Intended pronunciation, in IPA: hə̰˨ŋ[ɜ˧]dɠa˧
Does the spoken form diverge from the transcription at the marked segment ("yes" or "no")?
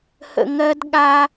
no